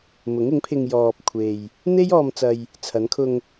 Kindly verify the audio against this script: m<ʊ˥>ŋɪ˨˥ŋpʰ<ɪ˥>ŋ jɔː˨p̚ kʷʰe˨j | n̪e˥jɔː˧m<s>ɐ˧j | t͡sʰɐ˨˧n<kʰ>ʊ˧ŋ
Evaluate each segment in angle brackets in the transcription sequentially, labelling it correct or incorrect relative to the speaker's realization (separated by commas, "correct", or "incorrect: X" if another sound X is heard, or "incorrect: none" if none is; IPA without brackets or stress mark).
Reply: incorrect: ʊ˨˥, incorrect: ɪ˧, incorrect: t͡s, correct